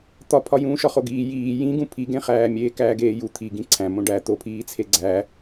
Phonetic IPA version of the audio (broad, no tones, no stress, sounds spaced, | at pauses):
t̪ ɒ pʰ ɒ j ũː ʃ ɒ χ o ɡ iː j iː j ĩ ɡ ũ pʰ i ɡ ẽ χ æː mʲ eː k æː ɡ eː j u t̪ʰ i ɡ ĩ ǀʰ æ̃ m õ ɖ æ t̪ o pʰ iː t͡sʰ e ɡ͡ǀ æ